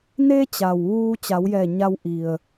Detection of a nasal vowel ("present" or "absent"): absent